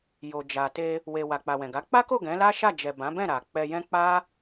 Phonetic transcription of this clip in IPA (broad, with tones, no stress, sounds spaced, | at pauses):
j o˨ d͡ʒ a˨ t e˧ | w e˨ w a˨ k͡p a˨ w ɛ̃˨ ɡ a˨˦ k͡p a˦ k o˦˨ ɡ ɛ̃˨˦ l a˦ ʃ a˦˨ d͡ʒ ɛ˨ b ã˨˦ b ɛ̃˦˨ ɾ a˨ k͡p ɛ˧ j ɛ̃˦ k͡p a˦